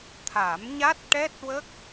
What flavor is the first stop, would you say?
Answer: aspirated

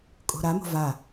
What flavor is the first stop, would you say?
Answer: ejective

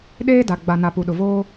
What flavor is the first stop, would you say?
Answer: implosive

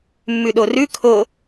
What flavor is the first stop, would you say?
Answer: implosive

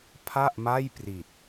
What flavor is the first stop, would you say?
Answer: aspirated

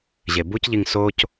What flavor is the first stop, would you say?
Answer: plain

